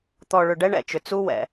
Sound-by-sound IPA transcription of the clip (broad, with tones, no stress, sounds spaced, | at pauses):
t̪ ɔ˨ ɭ ʏ˨ ɖ ɛ˦ ɳ ɛ̰˨ t͡ʃ ʏ˨ t͡s u˦ w ɛ̰˨